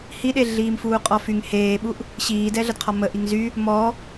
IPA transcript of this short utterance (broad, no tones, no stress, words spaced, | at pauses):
hiɗe ɮiːmfuːqʼɔfyŋ heːɓuʔ | ɕiːdɛɮədqʰɔ mə ʔiŋzy | mɔ